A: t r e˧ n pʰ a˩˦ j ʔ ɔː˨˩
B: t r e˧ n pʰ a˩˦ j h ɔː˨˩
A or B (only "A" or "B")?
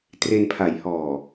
B